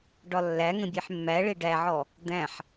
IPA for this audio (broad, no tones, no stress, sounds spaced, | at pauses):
ɖ ɒ lː æ ŋ ə̃ bʲ e ħ mː æ ɭ e ɖ æ ʕ ɔ | d̪ æ̃ ħ